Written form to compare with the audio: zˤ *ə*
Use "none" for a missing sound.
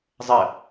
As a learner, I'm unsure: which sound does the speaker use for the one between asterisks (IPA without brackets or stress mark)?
ə